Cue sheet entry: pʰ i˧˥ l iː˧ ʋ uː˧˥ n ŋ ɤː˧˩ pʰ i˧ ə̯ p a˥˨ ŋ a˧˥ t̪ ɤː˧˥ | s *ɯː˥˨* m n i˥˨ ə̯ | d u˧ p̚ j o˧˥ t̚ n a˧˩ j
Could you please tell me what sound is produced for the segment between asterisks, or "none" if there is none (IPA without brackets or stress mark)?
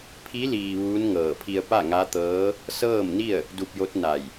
ɤː˥˨